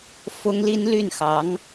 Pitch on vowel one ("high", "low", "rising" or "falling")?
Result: high